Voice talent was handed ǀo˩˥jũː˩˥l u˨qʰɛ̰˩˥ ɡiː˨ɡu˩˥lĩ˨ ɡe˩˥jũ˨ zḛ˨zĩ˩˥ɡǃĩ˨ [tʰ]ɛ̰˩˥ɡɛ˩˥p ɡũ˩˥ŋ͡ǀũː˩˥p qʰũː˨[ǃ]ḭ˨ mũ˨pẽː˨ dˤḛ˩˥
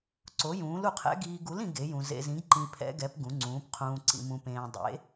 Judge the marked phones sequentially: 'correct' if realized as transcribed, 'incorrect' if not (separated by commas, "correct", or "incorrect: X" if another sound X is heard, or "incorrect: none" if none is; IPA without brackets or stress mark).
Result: incorrect: pʰ, incorrect: ǀ